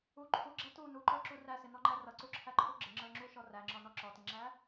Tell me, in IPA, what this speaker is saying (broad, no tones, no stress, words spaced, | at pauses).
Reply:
u ǃʰuɡ͡ǁæ tu nuǃə˞ǁu ræsɪnɔŋ͡ǃæ rʌǀuǁʰæǃʰu ɡ͡ǁɪŋ͡ǁə˞ŋ͡ǁuʃɔ ræŋ͡ǁɔnɔ ǁɔtɪŋ͡ǁæ